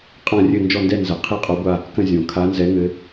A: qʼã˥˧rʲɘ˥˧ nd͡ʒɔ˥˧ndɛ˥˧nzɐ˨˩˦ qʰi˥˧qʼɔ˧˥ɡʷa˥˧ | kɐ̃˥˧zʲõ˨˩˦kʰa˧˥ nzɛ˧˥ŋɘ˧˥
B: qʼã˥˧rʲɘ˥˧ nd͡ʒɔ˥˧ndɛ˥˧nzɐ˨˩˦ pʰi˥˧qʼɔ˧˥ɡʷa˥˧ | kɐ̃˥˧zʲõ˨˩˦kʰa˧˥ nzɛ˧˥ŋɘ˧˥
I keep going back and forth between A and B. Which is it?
A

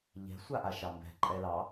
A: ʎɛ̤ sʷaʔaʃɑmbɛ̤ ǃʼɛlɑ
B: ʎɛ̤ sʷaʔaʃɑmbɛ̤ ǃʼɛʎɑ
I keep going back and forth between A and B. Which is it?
A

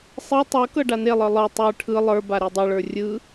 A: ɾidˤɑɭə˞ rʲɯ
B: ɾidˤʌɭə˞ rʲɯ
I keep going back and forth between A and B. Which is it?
B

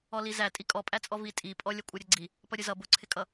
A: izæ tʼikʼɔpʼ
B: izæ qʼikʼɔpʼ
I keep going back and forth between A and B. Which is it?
A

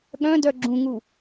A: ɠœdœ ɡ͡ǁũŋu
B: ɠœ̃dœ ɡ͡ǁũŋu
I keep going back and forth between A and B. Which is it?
B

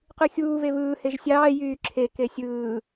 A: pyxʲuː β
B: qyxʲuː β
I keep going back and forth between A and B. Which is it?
B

